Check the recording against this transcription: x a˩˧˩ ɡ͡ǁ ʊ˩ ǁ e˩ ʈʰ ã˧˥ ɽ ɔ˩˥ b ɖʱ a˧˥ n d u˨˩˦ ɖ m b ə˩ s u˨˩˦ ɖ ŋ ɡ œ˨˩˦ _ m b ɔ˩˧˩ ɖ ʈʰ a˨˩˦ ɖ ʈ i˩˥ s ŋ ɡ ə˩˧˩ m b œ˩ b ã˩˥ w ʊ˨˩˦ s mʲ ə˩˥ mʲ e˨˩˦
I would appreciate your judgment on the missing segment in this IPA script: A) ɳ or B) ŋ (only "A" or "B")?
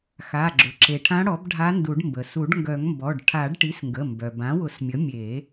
B